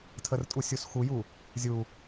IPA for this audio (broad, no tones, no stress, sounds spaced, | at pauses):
tʰ ə r tʼ u sʲ u s x u j u | zʲ u